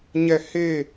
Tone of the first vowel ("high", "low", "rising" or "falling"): falling